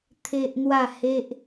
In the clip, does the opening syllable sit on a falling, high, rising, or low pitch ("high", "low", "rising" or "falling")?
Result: high